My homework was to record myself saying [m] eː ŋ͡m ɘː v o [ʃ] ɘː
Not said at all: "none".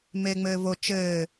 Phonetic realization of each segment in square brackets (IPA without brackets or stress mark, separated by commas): m, t͡ʃ